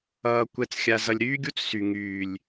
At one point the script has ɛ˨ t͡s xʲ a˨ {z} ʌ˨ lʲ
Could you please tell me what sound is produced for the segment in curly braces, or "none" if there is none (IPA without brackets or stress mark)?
z